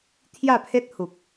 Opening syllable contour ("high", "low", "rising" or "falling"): falling